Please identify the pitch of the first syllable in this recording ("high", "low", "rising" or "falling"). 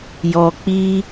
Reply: low